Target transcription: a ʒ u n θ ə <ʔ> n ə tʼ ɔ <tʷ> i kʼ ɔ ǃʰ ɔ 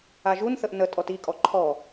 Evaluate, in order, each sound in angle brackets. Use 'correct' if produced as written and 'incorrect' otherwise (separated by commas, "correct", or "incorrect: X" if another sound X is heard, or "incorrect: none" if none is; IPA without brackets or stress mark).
correct, incorrect: t